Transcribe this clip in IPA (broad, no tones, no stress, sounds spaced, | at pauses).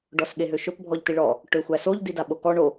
ɖ ɔ s ɠ e ɦ ø ʃ ɵ p bʱ ɔ ʎ t i ɭ ɔ | ʈ ø xʷ æ s o ʎ d i d a ɓ o k ɔ ɳ o